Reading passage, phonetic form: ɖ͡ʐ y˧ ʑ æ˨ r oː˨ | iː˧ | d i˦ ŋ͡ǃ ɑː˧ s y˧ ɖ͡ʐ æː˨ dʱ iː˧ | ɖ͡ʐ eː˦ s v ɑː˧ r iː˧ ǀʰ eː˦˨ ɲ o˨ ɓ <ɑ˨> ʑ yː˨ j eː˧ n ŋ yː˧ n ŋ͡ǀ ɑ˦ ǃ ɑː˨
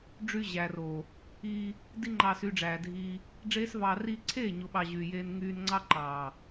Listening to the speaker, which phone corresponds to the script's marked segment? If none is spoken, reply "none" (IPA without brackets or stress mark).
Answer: ɑ˨